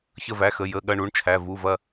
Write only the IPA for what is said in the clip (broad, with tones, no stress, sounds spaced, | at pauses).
ç ə˦˨ v æ˩˧˩ x ə˩˧˩ j ə˩˧˩ ɠ ɐ˦˨ ɳ u˩˧˩ ɳ t͡ʃʰ æ˩˧˩ v u˩˧˩ v ɐ˦˨